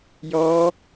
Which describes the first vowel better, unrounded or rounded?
rounded